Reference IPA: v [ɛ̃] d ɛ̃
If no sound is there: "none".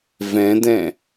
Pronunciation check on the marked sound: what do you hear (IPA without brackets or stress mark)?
ɛ̃